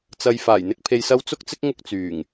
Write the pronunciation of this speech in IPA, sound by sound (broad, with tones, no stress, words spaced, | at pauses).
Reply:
t͡sɐ˨j faː˨˩jn̪ɪ˧k̚pʰe˨jsɐ˧w t͡sʊ˥k̚t͡sɪ˥k̚ ŋʊ˥k̚t͡syː˨˩ŋ